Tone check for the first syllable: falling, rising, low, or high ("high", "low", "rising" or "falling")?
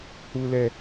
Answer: high